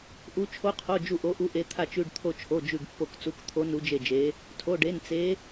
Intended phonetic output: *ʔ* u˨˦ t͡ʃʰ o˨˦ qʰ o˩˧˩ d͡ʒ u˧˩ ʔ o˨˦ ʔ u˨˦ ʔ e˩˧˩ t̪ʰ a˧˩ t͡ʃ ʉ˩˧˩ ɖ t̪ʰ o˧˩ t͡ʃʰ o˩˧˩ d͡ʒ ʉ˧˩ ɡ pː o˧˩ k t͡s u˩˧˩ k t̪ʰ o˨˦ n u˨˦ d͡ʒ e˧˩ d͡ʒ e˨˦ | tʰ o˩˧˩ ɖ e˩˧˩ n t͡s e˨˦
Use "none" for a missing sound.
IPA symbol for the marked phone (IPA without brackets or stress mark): ʔ